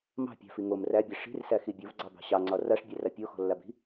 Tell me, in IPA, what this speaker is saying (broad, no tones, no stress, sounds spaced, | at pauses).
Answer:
m ɑ̤ pʲ ɑ̤ f i ŋ o m r æ bʲ ɛ ʂ i̤ r s æ x i bʲ o v ɡ͡ǀ ɑ b ɑ̤ ɕ ɑ ŋ͡ǀ ɒ r a ʂ bʲ æ r a pʲ o x ɔ̤ lː a b i̤